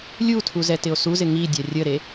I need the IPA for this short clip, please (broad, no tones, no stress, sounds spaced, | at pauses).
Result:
lʲ u tʰ u z ɛ t ɪ o̯ s u z ɪ ŋ i dʲ a rʲ ə ɾ e